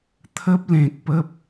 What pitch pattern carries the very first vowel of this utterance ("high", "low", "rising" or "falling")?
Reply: high